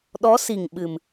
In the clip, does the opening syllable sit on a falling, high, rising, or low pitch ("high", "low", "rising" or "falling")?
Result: rising